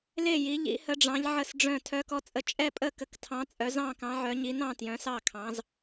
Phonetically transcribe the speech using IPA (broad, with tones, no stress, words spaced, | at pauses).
le˥˨ji˨˦ ʎḭ˨˦hə˨˦ɖ͡ʐɑ̃˨˦ʎ ʕə˥˨sɖ͡ʐœ̃˥˨ tʰœ˨˦kɔ˨˦t͡sʼə˨˦ t͡ʃʼɛ˥˨pʼə˥˨ kə˨˦ktʰɑ̃˨˦ t͡sʼœ˨˦zɑ̃˥˨kɑ̃˨˦ʕœ˨˦ ɲi˨˦nɑ̃˥˨ tjœ̃˨˦sɑ˥˨kʰɑ̃˨˦z